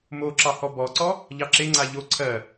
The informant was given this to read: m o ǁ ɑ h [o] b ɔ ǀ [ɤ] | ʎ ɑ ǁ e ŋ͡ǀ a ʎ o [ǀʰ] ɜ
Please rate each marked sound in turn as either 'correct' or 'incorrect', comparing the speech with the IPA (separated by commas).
incorrect, incorrect, correct